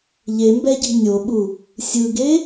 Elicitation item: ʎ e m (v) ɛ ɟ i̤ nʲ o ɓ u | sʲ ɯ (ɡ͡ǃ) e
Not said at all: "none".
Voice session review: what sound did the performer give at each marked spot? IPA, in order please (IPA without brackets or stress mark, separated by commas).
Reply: b, ɡ